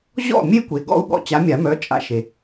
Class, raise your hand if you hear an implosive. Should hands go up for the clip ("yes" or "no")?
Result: yes